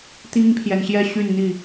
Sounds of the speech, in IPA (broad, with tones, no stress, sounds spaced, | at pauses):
t̪ i˦ ŋ pʰ j ɛ˨ n ɕ j ɛ˥˨ ɕ y˥˨ n n̪ i˥˨